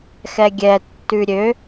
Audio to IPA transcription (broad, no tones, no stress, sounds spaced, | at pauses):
x ɛ ɡʲ ɛ tː ʉ ɾʲ ø